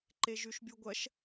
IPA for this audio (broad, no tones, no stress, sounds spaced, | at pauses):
ǃ e ʒ ʉ ʃ bʲ u ɡʷ ɐ ʃ